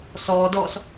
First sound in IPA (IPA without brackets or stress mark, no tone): s